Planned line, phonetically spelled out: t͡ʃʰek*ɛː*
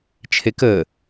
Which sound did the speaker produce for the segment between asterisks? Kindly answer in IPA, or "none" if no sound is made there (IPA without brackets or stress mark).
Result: əː